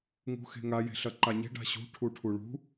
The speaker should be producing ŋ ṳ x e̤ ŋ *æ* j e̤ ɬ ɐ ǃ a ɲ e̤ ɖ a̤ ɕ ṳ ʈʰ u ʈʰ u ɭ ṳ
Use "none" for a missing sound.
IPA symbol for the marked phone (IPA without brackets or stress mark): a